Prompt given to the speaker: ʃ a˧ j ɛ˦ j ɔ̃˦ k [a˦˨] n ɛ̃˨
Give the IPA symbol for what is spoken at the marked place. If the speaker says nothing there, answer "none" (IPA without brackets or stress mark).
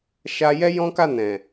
a˦˨